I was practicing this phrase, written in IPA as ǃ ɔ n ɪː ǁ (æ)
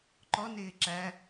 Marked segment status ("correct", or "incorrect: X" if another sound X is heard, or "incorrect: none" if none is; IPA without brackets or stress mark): correct